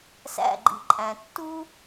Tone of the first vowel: falling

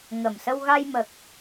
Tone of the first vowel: low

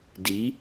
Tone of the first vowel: rising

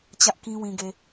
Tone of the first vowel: high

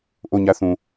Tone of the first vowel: falling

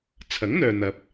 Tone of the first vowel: rising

